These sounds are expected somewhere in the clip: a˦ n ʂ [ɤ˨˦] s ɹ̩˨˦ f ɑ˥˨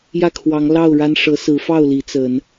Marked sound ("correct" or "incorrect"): correct